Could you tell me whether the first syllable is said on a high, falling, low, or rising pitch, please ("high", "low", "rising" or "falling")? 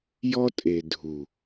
high